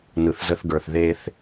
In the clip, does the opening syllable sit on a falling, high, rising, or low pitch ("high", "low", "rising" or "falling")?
low